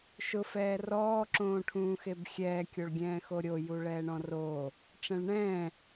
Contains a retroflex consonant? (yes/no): yes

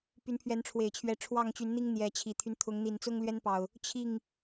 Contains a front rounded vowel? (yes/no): yes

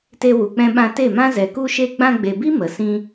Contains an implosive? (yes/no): yes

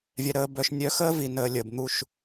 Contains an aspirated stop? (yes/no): no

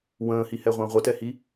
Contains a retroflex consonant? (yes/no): no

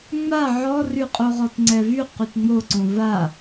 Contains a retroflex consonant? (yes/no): no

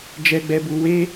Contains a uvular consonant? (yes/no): no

